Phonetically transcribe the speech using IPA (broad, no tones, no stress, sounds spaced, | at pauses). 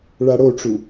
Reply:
ɭ a ɽ o ʈ͡ʂ u